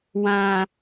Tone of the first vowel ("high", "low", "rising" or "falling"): low